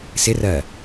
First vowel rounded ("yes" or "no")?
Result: no